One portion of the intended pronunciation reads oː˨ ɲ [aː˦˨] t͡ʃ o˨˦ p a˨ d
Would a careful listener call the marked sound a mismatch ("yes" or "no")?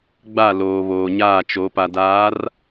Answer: no